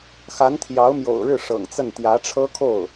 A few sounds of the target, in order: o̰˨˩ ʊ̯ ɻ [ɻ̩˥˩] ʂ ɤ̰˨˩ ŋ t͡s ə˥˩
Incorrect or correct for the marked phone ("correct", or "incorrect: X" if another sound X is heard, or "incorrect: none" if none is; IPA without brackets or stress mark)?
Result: correct